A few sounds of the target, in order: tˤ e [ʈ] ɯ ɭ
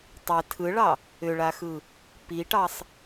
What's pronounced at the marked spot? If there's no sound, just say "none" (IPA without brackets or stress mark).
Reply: tʰ